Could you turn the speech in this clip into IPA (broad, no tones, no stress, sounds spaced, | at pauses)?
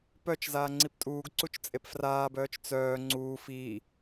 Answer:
p œ t͡ʃ z aː ŋ͡ǀ i p tʼ uː ɡ ǀ u t͡ʃ t͡sʼ e p f r aː b œː t͡ʃ t͡s œː ŋ͡ǀ uː f iː